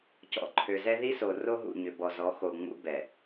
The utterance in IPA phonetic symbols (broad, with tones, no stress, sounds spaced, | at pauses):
c ɔ̰˨ ǃʰ ø˨ z ɛ˦ ð i˦ s o˨ r o˦ ɦ ṵ˨ ɲ ʏ˨ b ɔ˨ z ɔ˨˦ x o˨ ŋ͡m ṵ˦ b ɛ˨